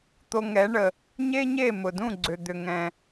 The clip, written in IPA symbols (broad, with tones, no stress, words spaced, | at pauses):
t̪o˧ŋɛ˩˥ɳə˩ | ɲe˥ɲe˥˩mʊ˩dũ˥˩ ɡ͡ǀʏ˩d̪ʏ˩ ŋɛ̃˩